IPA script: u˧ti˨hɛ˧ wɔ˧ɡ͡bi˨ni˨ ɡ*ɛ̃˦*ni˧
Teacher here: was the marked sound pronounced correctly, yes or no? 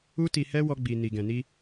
no